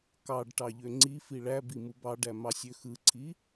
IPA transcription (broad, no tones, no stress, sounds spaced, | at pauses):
k ɑ ɖ ʈ ɑ ʎ ø ŋ͡ǀ i f i ɭ æ b i m u b ɑ ɖ æ m ɑ sʲ ø x ɯ ǀʰ i